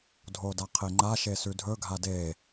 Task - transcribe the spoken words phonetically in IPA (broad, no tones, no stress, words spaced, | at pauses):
dʱodaqʰeŋ͡ǃa ʃesʉdʱɵ ɡʱade